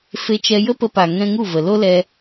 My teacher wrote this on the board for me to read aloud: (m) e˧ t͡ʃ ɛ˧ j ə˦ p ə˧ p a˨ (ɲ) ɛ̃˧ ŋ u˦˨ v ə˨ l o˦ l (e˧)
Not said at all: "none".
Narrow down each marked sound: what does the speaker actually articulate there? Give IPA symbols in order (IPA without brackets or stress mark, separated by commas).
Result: f, ŋ, ɛ˧